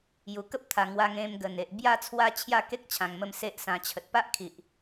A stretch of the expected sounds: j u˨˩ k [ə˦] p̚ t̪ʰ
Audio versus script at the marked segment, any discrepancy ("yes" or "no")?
no